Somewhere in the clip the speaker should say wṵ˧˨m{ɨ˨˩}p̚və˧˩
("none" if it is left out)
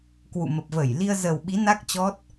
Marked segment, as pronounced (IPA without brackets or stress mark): ə˨˩